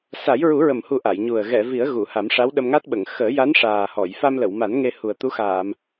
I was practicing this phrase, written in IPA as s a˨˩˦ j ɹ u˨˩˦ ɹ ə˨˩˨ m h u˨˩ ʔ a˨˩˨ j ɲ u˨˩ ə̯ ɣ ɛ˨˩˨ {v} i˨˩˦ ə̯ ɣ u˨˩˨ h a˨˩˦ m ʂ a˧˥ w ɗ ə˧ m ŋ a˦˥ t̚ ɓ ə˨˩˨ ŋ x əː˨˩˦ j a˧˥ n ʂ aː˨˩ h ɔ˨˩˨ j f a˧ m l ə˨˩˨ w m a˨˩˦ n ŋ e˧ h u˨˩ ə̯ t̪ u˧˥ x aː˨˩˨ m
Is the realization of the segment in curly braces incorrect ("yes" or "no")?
no